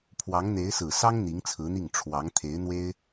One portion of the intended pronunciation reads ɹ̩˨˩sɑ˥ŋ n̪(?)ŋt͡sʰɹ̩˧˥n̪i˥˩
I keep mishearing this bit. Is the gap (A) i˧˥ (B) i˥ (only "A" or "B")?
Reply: A